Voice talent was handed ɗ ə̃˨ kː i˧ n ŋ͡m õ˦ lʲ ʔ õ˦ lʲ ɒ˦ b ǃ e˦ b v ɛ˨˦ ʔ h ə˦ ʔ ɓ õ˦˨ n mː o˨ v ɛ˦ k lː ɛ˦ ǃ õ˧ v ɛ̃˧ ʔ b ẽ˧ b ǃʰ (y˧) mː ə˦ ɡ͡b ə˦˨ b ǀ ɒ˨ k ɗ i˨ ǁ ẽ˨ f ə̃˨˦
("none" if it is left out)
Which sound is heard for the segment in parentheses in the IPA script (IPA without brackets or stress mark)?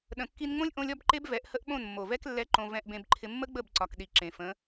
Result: ɪ˧